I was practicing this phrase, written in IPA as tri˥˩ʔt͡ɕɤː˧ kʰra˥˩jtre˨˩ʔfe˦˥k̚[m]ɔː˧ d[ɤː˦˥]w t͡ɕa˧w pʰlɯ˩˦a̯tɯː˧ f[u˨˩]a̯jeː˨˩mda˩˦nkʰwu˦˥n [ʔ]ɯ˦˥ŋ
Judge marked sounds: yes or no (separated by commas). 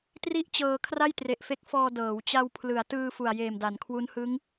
no, no, yes, no